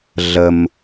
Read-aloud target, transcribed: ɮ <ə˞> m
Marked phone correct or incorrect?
incorrect